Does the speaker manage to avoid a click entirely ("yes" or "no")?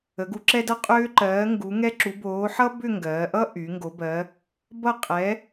no